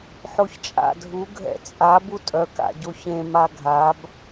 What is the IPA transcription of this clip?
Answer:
ħoçt͡ʃʼa̰ dʱu ɡʱɛ̰t͡sʼa butʼœ ka̰ɟoçẽ maɡʱab

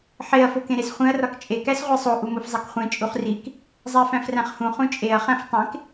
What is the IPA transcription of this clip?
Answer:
ħeɐ̯ fokẽɾesχʷẽɐ̯ rɒkt͡ʃʼe kæsʁʷesˤo ʔumofzˤekχʷẽ t͡ʃʼuχrik | zˤæfæ̃fræ̃χhũ χũt͡ʃʼeɐ̯ χæ̃ftˤẽk

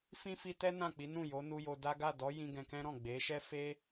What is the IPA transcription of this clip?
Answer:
fĩ˦fi˧tɛ˦ nã˦˨k͡pi˨˦ nũ˦˨jo˨˦ nu˧jo˧da˦ ɡa˦˨dɔ˨˦jĩ˧ ɡɛ̃˧kɛ̃˦ɾɔ̃˦˨ ɡ͡be˨˦ ʃɛ˦fe˦

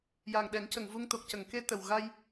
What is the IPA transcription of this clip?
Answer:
ja˨˩ŋɗɛ˨˩˦ŋcə˨˩˨ŋ vu˧ŋ t̪o˨˩k̚cə˨˩˨ŋke˧ t̪ə˨˩wɣa˧j

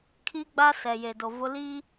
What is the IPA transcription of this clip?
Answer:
kʰi˦ɡ͡ba˦ sɛ˨ je˨do˨vʊ˦ liː˦

